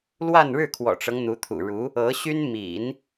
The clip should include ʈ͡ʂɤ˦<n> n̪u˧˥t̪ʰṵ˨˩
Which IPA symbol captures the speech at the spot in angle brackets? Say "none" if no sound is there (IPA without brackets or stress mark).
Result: ŋ